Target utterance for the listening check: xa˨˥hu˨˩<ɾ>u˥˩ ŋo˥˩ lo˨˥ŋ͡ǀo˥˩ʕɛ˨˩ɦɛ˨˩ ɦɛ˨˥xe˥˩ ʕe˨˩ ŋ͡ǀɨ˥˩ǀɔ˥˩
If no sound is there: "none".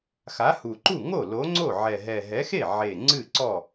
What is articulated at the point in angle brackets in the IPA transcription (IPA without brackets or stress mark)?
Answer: ǃ